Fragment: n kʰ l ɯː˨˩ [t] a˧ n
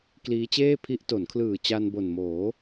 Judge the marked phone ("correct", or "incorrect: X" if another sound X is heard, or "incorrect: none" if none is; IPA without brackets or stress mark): incorrect: t͡ɕ